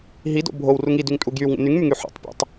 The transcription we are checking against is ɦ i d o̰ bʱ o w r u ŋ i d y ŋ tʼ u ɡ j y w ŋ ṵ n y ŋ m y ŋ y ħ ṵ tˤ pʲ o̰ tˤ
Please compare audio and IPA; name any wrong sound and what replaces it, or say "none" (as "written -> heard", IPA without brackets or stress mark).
none